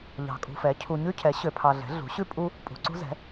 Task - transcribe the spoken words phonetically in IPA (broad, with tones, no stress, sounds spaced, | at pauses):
ʎ ɑ̤˨ kʼ ṳ˨ f ɛ˩˥ cʰ u˨ ɲ ʉ˦ cʰ ɛ˩˥ ɕ ø˨ pʰ ɑ˨ ɮ ɛ̤˩˥ ɮ ṳ˩˥ ɕ ʉ˦ pʼ u˦ | pʼ ṳ˨ ǀ ṳ˦ z ɛ̤˩˥